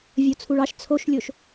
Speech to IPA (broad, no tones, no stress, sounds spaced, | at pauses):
vʲ o t͡sʰ u ɭ ɑ ʃ t͡sʰ o ʃ lʲ o ʃ